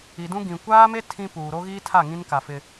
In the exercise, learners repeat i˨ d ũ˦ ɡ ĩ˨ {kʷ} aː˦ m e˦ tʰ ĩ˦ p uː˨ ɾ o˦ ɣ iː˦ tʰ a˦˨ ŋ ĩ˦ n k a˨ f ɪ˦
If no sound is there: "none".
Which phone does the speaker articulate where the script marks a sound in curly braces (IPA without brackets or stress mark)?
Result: kʷ